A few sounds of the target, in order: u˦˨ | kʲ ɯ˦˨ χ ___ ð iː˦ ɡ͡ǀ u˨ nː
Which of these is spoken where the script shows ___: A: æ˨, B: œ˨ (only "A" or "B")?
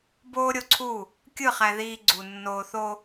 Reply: A